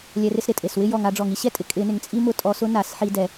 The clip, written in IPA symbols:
lʲ ɛ˨˩˦ r ɪ˧ s ɾ ɪ˩ tʼ e˩ s w ɪ˥ j ɔ˩ ŋ a˨˩˦ ɖ͡ʐ ɔ˩ ŋ i˥ ɕ ɛ˥ tʼ ɪ˩ kʼ ɪ˨˩˦ n ɪ˩ ŋ t͡sʼ i˥ m ʊ˧ tʼ ɔ˨˩˦ s ʊ˥ n a˨˩˦ s ħ i˧ d ɛ˩

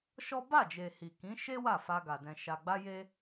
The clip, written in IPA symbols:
ʃ ɔ˦ b a˦˨ d͡ʒ e˨ h i˨ k ĩ˨˦ ʃ e˦ w a˦˨ f a˧ ɡ a˨ d ɛ̃˨ ʃ a˨ ɡ͡b a˧ j e˧

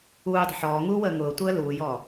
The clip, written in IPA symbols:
uː dˤ ə̤ ħ ɔː ŋ uː w əː ŋ ʊː tʷ əː l uː j ɔː

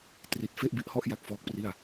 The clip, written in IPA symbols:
t r i˦˥ t̚ f e˥˩ ʔ b i˦˥ ʔ h ɔ˥˩ ʔ j a˥˩ k̚ f ɔː˦˥ k̚ p r i˥˩ a̯

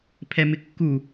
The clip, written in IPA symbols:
pʰ ɛ m ɪ kː u

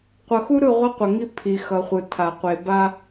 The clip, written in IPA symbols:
qʷ ʌ˨ x u˦ ɾ ɯ˦˨ ʁʷ i˦ qʷ ʌ˨ ŋ i˦ pʰ i˨ x ʌ˨ χʷ ɯ˨ tʰ a˨ qʷ e˨ b a˦

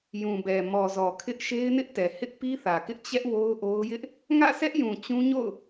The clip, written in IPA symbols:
j ũ˨ b ɛ˨ m ɔ˨ z ɔ˨ kʰ ɪ˦ ʔ ʃ e˦ ɪ̯ n ɪ˦ ʔ t ɛ˨ h ɪ˦ ʔ p i˦ θ ä˨ k ɪ˦ ʔ t͡ɕ ɛ˦ ʔ w o˦ ʊ̯ ʔ o˦ ʊ̯ j ɪ˦ ʔ | ŋ ä̰˦˨ sʰ ɛ˦ ʔ j ũ˨ t͡ɕ ũ˦ ɲ o̰˦˨ ʊ̯

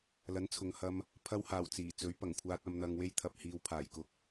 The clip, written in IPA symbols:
l ɐ˨˥ n t͡sʰ ʊ˨ ŋ h ɐ˧ m | pʰ ɐ˧ w h aː˨˩ w t͡s iː˨˩ t͡s ɵ˨˥ ɥ p ɐ˨˩ ŋ kʷʰ aː˧ t̚ ɐ˧ m n̪ ɐ˧ ŋ w e˧ j t̪ʰ ɐ˨ p̚ h iː˨ w pʰ aː˨˩ j k ʊ˧ k̚

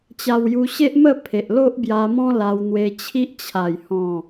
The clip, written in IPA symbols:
t͡ɕ a˧ w j u˧ ɕ e˦ ʔ m ə˥˧ pʰ e˨ ʔ l o˦ ʔ b j a˧ m ɔ̃˦ l a˧ w n̪ w e˧ t͡ɕʰ i˦ ʔ t͡ɕʰ a˨˩ j h ɔ̃˨˩

